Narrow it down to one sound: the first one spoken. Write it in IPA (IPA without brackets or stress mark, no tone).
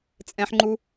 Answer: t͡sʼ